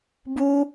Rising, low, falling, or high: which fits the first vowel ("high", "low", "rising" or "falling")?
high